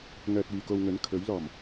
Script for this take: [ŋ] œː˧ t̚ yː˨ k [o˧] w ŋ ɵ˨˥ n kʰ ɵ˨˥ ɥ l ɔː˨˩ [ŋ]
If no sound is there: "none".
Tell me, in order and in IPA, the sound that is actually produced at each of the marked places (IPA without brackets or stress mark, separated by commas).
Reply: ŋ, o˧, m